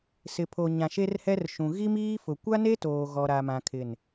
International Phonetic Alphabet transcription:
s ɪ˨ pʰ o˨ ɲ ã˨ ʃ e˦ r h ɛ˦ r ʃ ũ˨ ɣ i˦ m iː˦ f ʊ˨ kʷ a˦ n e˦ t oː˨ ɣ ɔ˦ ɾ a˦ m ã˦ kʰ ɪ˦˨ n

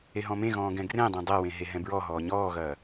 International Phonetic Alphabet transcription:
e ɦ ɔ̃ m ẽ ɣ ɔ̃ː ɡ ɛ̃ ɡ r ẽ dˤ ẽ dˤ ɛ w ẽ ɦ e ɦ ɛ̃ b ɹ ɔ ɦ ɔː ɲ ɔː ɣ ɐː

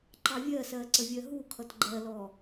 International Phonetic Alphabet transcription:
ǃ ɑ vʲ ɜ s ɜ ǀ ə vʲ ɜ ɦ u kʰ ʌ t ɡ͡ǃ ɜ l ɔ

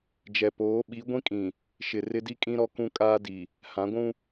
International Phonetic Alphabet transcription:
d͡ʒ ɛ˨ p oː˨˦ ɓ i˨˦ ɡʷ ĩ˦ kʼ ĩ˨ | ʃ ɪ˨ r ɪ˦ d i˦ kʼ ĩ˦ ɾ ɔ˦ k ũ˦ kʼ aː˦ d i˨ | h ã˨˦ ɡʷ ũ˦

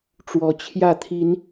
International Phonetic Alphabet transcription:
ʈ͡ʂ w ɔ˨˦ t͡ɕʰ j ä˥˨ t̪ʰ i˨˦ n

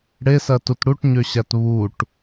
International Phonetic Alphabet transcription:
ɽ e s ɜ t u t ɽ u ʈ ɲ ø ɕ æ t β u ʈ

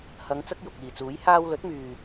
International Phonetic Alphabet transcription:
h ɐ˨˧ ŋ t͡s ɐ˥ k̚ j ʊ˨ k̚ iː˨ t͡s uː˨˥ j h aː˧ w l ɵ˨˥ t̚ m yː˨

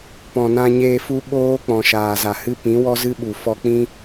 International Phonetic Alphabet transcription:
p ɔ̃˨ n ã˧ ɲ eː˧ f u˦ ɓ oː˦ k͡p ɔ̃˨ ʃ aː˨ z a˨ h ɨ˦ p ĩ˨˦ w ɔ˦ z ɨ˦ ɓ u˨ f ɔ˧ k͡p ĩ˦

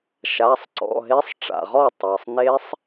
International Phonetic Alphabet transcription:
ʃ a˩˧˩ sˤ ǀ ɔ̰˩˧˩ ɦ e˦˥ sˤ ʈ͡ʂ a̰˩ ʁ ɔ˥˩ tˤ ɜ˩ sˤ n e˦˥ sˤ

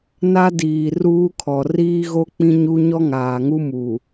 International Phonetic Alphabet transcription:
n a˦ d iː˨ r uː˦ kʰ ɔ˨ r iː˦ ɣ o˦ k͡p ĩ˦ ɲ u˦ ɲ ɔ˦ ŋ aː˨ ŋ u˦ m uː˨

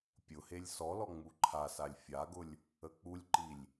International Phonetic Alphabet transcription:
pʲ ʊ h e lʲ s ɔ l ɔ ŋ͡m u ǃʰ a s a lʲ fʲ a ɡ ʊ lʲ | ə k͡p u lʲ ǃ i lʲ

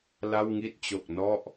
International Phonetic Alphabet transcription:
l a˥˩ w ŋ i˥˩ t̚ t͡ɕ o˨˩ k̚ n ɔ˥˩ ʔ

